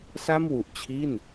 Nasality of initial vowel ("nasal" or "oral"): oral